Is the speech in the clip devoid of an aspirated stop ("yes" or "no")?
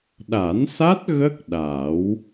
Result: yes